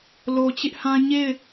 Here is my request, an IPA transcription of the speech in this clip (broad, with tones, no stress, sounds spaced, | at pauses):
l o˨ t͡ɕ ɪ˦ ʔ h ã˦ ɲ e˦˨ ɪ̯